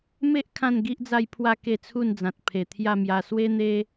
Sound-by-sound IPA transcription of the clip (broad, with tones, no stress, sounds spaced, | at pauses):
m e˦ ʔ kʰ ã˥˧ n ɡ i˦ ʔ d͡z a˥˧ j pʰ w a˥˧ k e˥˧ t͡sʰ u˥˧ n d͡z ã˨ t̚ pʰ e˨˩ t̪ʰ j a˥˧ m j a˧ s w e˦ n̪ e˦